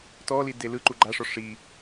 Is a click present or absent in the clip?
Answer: present